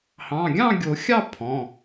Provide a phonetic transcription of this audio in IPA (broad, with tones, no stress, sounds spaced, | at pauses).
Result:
h ɑ̃˩˧˩ ɡʲ ɑ̃˥˨ ɡʲ o˨˩˦ xʲ ɑ˥˨ pʰ ɔ̃˩˧˩